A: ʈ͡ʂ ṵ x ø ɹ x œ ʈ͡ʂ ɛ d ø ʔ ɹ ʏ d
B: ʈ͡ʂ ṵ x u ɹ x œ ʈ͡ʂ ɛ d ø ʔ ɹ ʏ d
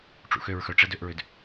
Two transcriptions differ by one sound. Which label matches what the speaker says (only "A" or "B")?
A